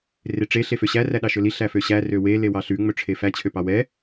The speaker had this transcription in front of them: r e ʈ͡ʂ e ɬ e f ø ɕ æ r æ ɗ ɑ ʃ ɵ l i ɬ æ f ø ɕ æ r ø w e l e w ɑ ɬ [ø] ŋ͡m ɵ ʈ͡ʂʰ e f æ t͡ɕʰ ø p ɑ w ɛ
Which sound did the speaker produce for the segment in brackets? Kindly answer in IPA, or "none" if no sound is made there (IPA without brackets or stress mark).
ʉ